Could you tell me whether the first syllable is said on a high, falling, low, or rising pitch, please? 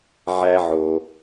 high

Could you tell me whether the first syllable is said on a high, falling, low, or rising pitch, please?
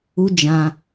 high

